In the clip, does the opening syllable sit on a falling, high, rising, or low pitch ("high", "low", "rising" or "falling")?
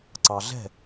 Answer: low